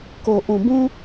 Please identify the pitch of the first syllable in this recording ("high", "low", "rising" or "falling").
low